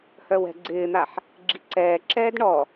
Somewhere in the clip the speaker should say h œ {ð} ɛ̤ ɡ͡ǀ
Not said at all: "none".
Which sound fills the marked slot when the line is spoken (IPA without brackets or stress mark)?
w